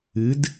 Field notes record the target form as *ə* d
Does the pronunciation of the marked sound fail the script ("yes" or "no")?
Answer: yes